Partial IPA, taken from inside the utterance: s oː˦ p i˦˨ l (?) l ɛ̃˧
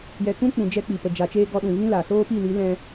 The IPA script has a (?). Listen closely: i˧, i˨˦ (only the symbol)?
i˨˦